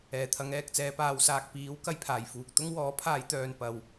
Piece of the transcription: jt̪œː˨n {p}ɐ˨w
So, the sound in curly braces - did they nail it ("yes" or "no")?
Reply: yes